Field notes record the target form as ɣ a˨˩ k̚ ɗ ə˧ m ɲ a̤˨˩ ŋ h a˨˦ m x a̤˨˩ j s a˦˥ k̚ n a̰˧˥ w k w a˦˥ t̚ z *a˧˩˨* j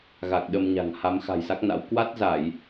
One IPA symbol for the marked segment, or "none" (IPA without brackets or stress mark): a˧˩˨